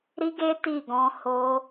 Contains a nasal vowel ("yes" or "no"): yes